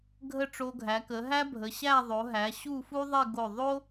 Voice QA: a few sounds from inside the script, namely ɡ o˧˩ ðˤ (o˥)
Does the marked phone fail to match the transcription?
no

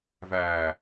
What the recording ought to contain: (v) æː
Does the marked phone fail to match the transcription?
no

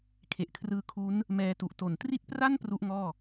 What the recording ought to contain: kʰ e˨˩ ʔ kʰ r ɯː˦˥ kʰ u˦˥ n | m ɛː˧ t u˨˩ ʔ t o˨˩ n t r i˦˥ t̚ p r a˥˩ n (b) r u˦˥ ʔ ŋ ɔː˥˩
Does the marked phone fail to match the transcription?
yes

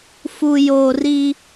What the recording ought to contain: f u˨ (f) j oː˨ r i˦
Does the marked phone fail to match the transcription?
yes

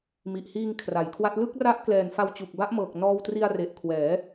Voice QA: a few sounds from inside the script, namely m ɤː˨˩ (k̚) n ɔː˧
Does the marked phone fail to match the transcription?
no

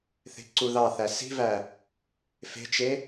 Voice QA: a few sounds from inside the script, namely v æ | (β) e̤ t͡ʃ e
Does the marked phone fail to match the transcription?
yes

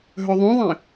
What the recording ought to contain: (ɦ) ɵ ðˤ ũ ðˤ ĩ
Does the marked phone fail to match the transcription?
no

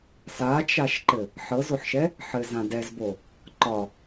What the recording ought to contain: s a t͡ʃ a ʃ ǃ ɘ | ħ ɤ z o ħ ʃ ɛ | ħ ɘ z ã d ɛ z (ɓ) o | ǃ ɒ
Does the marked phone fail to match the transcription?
yes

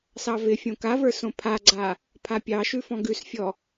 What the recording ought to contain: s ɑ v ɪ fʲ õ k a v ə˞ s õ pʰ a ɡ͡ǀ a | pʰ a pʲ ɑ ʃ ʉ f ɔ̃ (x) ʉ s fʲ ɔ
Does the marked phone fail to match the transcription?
yes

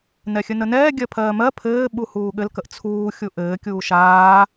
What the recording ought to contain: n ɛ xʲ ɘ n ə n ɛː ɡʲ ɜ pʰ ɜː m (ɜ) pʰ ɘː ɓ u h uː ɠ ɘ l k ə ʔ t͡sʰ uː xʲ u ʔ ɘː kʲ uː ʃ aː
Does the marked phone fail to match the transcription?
no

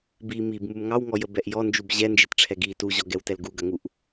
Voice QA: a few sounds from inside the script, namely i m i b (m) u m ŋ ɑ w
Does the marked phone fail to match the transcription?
no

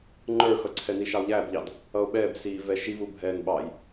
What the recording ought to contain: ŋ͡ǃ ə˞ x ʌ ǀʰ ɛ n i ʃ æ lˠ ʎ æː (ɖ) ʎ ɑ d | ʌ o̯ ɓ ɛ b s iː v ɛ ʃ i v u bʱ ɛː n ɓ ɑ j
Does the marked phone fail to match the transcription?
yes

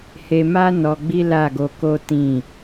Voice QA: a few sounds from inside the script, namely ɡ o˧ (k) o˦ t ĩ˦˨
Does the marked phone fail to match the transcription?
no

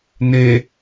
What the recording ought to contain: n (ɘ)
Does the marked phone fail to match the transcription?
yes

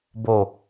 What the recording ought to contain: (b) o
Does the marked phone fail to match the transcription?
no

